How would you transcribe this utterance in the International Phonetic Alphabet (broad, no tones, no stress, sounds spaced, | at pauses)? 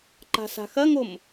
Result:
ǃ a̤ s a̤ x ɐ ŋ o m